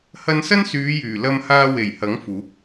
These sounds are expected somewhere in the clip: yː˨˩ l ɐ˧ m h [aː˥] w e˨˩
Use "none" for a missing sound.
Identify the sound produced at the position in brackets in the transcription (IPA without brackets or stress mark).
aː˧